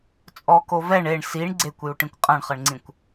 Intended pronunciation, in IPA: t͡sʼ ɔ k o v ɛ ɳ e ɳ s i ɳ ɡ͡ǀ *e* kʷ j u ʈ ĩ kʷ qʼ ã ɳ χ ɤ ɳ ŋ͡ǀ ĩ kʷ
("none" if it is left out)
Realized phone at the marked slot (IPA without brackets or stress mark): e